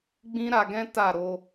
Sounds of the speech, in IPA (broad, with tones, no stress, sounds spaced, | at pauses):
ɡ͡b ĩ˦ ɾ a˧ ɡ ɛ̃˦ t a˦˨ ɾ o˧